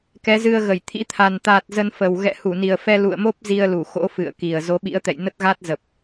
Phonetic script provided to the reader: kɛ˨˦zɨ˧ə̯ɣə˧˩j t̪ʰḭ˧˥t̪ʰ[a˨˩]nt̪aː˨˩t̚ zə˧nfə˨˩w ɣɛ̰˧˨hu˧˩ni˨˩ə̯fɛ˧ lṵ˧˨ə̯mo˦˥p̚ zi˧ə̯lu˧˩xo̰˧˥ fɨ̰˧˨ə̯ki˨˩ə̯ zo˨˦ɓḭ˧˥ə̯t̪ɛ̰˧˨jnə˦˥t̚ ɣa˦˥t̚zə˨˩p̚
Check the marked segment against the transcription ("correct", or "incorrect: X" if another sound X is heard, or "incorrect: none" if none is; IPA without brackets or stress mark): correct